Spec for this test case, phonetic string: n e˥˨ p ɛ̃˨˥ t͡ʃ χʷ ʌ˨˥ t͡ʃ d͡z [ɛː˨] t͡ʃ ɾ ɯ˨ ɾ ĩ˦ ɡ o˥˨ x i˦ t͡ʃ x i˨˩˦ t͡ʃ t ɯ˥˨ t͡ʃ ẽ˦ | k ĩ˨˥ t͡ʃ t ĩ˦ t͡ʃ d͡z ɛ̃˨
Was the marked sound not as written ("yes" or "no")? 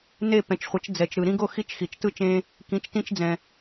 yes